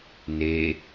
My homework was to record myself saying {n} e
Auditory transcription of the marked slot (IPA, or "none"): n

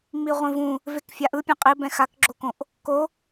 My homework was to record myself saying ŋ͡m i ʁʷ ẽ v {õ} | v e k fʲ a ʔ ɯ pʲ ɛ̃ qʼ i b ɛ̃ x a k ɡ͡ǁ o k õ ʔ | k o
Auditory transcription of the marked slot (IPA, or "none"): ũ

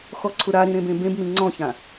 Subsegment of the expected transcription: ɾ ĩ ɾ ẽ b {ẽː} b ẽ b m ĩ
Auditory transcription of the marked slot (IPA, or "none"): ẽ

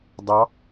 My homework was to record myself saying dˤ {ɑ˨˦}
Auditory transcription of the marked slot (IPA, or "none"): ɑ˨˦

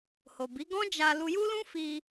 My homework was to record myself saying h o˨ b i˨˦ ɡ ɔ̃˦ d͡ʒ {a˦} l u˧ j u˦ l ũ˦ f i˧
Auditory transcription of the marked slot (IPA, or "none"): a˧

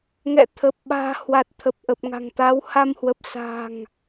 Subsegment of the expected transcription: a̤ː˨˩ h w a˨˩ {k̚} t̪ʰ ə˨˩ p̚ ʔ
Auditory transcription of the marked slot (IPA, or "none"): t̚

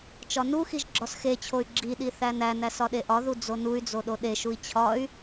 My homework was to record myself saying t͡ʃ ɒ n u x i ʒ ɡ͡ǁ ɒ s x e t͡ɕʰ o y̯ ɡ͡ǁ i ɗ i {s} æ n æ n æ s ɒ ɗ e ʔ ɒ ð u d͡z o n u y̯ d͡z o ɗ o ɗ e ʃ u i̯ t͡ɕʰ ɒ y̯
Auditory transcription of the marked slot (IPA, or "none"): θ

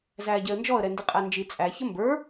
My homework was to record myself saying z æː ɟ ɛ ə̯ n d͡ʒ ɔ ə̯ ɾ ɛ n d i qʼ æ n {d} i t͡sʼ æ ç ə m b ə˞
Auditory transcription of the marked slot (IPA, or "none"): d͡ʒ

